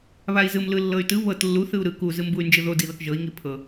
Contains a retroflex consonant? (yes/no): no